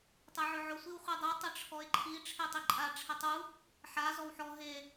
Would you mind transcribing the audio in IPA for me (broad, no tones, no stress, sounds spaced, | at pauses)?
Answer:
tˤ ɛ ʕ ʊ ʕ ʊ sʷ i w χʷ ɛ dˤ u tˤ ɪ ʈ͡ʂʰ ɔ e̯ ǃʰ i ʈ͡ʂʰ e tˤ i ǃʼ a ʈ͡ʂʰ ɪ tˤ u | ħ a z ɔ w ħ ɔ ɦ e